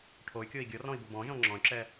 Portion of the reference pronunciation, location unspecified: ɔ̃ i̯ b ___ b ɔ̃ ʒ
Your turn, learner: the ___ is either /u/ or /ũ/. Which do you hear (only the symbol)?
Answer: u